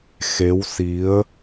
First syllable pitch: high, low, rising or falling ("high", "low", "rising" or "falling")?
rising